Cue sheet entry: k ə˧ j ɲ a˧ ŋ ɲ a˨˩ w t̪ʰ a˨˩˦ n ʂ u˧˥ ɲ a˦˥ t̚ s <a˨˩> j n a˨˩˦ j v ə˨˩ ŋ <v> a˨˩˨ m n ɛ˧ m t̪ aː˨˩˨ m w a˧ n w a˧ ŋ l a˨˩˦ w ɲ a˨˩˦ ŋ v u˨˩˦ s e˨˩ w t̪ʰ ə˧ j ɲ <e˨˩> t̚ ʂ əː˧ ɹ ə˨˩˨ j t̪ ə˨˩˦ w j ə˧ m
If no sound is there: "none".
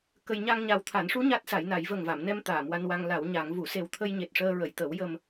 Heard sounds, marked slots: a˨˩˦, v, e˨˩

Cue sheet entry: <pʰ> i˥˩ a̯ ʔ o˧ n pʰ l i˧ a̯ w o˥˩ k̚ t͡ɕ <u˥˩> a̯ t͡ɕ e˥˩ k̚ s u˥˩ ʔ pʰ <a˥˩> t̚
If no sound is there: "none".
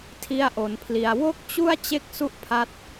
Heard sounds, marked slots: tʰ, u˥˩, a˦˥

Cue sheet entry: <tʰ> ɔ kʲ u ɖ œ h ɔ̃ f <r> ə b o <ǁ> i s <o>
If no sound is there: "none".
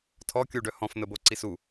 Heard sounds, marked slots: tʰ, n̪, ǀ, u

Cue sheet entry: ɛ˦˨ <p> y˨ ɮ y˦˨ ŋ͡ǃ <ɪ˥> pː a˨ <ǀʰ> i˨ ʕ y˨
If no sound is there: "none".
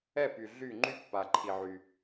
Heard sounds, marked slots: p, y˥, ǃʰ

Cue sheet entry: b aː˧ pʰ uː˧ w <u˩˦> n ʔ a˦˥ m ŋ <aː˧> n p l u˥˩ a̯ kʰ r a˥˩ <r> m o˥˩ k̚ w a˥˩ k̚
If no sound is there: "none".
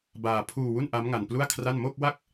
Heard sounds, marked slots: u˥˩, a˧, n

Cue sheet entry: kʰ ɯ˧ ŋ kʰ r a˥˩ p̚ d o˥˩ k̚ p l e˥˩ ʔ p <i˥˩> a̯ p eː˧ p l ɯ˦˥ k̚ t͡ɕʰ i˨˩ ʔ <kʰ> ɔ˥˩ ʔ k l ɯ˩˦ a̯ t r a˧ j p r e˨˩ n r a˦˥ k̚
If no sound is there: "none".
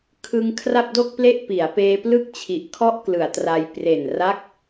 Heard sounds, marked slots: i˩˦, kʰ

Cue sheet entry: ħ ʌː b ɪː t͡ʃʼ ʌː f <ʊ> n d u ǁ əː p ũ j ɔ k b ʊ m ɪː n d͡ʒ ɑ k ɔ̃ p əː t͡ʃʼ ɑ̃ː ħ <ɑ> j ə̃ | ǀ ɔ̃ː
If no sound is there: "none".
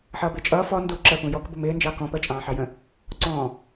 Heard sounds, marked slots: ɔ, ɑ

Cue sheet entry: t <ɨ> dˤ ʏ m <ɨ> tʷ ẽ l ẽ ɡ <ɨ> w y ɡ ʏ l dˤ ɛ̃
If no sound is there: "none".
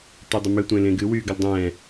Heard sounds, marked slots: y, ʏ, ɨ

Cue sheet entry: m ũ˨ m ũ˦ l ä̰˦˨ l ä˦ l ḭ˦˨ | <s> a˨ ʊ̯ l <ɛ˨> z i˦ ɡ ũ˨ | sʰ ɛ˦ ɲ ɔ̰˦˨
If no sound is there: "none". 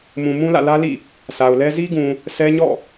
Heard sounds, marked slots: s, ɛ˦

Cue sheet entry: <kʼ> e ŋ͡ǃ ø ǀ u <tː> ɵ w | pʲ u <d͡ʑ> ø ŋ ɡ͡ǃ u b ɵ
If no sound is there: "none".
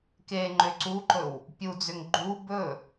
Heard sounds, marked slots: k, ǃ, d͡z

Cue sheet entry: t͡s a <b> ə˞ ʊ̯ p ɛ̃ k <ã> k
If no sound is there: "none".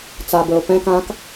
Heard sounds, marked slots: b, ã

